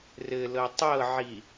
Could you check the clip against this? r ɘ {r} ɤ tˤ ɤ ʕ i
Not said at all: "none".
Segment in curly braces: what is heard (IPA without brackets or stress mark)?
l